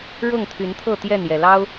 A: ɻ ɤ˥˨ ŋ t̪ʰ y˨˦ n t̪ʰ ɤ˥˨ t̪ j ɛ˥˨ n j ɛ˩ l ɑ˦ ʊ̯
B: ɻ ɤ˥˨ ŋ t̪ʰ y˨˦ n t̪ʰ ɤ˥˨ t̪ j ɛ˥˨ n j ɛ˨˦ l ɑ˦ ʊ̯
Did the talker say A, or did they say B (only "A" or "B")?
A